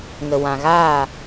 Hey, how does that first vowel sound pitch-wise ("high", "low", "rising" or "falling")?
low